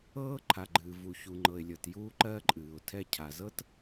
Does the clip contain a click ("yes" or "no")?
yes